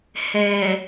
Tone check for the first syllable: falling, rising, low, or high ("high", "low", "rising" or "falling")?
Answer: low